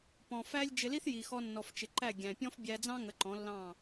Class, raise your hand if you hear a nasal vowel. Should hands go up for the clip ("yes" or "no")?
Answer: yes